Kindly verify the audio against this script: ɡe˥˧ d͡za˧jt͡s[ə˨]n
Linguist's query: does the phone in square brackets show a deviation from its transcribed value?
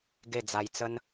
yes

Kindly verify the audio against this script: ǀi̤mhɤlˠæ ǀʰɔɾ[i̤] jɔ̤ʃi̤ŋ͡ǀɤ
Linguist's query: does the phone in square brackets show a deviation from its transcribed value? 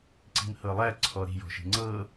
no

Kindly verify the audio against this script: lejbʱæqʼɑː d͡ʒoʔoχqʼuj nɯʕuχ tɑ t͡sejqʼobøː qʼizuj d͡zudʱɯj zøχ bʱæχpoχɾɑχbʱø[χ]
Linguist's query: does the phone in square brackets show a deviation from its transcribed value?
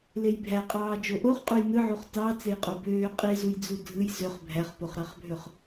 no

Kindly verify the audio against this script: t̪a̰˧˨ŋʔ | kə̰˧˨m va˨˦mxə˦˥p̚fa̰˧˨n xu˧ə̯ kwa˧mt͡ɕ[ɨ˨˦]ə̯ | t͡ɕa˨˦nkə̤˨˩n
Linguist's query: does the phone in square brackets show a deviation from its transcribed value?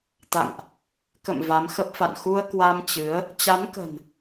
no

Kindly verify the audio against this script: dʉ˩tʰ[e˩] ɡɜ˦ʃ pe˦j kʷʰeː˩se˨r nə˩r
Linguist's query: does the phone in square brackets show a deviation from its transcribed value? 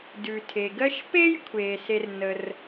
no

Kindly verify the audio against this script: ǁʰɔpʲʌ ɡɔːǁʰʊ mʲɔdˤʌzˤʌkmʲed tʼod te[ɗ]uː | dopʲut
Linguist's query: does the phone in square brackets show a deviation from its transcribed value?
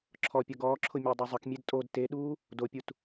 no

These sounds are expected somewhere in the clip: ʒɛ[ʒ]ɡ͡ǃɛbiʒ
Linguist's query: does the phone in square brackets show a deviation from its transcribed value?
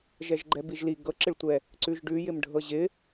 no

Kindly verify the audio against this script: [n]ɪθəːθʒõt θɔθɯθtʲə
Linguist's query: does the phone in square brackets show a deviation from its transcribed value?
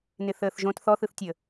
no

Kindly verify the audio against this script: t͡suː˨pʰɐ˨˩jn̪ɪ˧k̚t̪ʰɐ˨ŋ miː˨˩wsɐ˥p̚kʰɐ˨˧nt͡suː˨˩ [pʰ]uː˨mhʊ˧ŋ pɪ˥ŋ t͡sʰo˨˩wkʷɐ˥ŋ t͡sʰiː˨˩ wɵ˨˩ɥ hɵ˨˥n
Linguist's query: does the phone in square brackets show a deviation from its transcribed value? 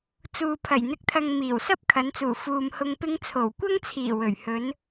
yes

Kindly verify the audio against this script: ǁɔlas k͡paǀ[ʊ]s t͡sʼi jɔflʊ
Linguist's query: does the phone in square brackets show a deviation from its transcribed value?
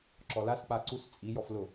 yes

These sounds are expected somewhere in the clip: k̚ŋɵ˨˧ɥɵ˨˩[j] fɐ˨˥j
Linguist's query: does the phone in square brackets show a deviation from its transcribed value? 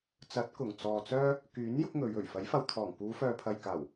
yes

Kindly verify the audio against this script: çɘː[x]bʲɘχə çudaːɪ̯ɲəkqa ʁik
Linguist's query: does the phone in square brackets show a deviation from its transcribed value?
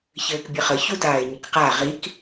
yes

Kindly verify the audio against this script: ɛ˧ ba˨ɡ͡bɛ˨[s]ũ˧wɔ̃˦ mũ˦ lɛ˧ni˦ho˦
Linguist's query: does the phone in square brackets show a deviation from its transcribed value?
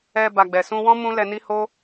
no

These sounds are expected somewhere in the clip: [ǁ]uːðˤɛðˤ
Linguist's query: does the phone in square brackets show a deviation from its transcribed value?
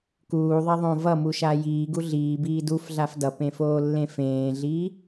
yes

